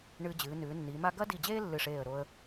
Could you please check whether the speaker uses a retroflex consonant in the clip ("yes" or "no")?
yes